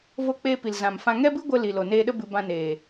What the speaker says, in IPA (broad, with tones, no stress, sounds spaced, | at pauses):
v o˧ k͡p eː˧ p i˨ l z ã˨ m f ã˧ ŋ ɛ˦ b ɨ˦ ɡʷ ə˧ l i˨ l o˨ n eː˧ ɗ ə˦ b ɨ˧ b ã˧ n eː˨